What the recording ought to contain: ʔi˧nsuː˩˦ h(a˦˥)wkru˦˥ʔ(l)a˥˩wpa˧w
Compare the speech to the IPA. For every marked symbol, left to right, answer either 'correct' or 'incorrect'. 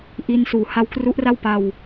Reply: correct, incorrect: r

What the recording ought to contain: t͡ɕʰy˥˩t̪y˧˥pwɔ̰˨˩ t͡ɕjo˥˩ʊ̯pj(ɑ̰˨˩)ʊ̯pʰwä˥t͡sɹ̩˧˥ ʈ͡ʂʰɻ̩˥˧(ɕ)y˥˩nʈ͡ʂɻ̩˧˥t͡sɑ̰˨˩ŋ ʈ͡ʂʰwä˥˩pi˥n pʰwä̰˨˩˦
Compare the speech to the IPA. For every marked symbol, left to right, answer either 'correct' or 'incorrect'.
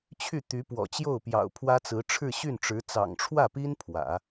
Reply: correct, correct

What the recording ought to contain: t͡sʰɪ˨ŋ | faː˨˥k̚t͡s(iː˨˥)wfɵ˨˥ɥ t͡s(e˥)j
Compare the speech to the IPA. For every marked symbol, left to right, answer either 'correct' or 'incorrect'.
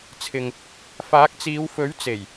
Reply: incorrect: iː˨˧, incorrect: e˨˩

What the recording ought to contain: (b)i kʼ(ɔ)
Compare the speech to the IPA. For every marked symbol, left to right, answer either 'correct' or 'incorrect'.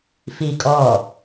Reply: incorrect: f, correct

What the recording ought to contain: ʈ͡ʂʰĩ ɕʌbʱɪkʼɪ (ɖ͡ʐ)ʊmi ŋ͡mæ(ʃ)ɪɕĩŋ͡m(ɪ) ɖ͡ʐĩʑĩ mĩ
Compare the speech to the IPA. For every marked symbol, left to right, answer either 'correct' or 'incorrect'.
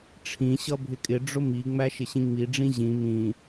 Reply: correct, correct, incorrect: i

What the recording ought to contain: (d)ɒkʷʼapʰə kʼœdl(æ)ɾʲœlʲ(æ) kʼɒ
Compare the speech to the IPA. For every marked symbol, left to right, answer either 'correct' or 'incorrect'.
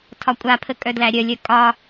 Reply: incorrect: tʰ, correct, incorrect: œ

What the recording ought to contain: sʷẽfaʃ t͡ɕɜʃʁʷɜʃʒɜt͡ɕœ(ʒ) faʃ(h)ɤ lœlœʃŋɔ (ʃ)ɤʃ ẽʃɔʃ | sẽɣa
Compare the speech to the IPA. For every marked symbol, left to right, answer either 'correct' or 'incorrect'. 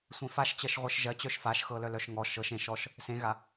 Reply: incorrect: ʃ, incorrect: x, correct

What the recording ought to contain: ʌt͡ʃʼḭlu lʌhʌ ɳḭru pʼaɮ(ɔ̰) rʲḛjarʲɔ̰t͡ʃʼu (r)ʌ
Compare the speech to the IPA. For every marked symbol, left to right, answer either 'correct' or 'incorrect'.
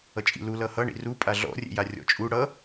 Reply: correct, incorrect: ɽ

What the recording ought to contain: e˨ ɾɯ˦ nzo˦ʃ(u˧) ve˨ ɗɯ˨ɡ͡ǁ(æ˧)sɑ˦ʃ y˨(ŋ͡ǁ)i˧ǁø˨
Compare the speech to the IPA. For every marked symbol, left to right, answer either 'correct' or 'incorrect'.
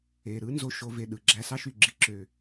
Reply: incorrect: o˧, correct, incorrect: ɡ͡ǁ

